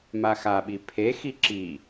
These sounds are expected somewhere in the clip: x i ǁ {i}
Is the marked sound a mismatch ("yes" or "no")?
no